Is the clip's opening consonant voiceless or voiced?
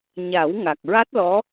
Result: voiced